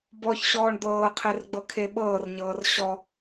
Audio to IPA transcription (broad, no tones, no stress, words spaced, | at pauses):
bɔçɕɔːɳ d̪ɤːqʰerɡ͡bɤkʰe ɓɤːrɲɤːr ɕɔ